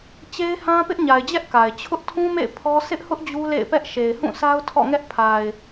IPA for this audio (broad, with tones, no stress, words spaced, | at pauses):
t͡ɕe˦ɪ̯hã˦ pɪ˦ʔɲa˨ɪ̯d͡ʑɛ˦ʔ ka˨ɪ̯ t͡ɕʰʊ˦ʔtʰũ˦mḛ˦˨ɪ̯ pʰɔ˦ sɪ˦ʔhʊ˦ʔ d͡ʑu˦lḛ˦˨ɪ̯pɛ˦ʔ ʃe˨ɪ̯hũ˦˨sa˦ʊ̯ tʰɔ̰˦˨ŋɛ˦ʔ pʰa˨ɪ̯